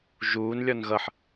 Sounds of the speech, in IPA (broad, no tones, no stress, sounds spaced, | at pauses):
ʒ uː n lʲ ɔ n ɣ ʌ ħ